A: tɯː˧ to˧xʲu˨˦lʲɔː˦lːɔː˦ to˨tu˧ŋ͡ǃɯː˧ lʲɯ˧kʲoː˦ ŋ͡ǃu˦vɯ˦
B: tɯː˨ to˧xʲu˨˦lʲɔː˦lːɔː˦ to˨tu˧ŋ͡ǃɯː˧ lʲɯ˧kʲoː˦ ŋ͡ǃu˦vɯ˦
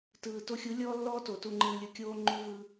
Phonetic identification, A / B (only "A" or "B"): B